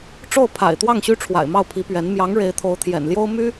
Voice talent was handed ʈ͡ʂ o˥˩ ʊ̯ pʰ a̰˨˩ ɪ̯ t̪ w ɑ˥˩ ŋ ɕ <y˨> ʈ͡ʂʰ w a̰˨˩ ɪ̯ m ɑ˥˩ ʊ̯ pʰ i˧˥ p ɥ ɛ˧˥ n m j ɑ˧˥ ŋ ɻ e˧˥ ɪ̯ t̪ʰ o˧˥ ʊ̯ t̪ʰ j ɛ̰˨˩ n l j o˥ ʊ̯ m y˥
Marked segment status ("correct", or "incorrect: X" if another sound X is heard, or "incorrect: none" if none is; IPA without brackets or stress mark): incorrect: y˥